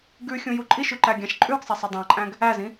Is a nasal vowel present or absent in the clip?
present